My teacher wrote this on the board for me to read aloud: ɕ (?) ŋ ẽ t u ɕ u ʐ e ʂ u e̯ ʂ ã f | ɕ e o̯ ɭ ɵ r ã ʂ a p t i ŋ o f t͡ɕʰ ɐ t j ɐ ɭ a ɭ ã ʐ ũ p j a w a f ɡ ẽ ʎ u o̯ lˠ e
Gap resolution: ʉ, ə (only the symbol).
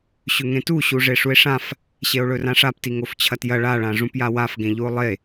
ʉ